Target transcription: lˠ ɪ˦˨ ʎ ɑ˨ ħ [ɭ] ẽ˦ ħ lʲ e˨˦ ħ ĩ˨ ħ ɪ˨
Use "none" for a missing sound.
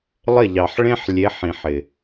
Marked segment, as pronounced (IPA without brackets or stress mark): ɭ